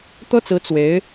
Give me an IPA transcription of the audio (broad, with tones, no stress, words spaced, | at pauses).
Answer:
t̪ɤ˥t͡sɹ̩˧˥ t͡swe˧˥ɪ̯